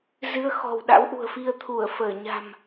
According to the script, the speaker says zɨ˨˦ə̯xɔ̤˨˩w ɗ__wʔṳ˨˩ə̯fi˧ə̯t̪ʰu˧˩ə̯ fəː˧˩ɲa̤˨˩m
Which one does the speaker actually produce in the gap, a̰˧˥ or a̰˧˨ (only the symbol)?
a̰˧˥